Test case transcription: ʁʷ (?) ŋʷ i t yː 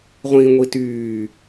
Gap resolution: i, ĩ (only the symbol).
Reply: ĩ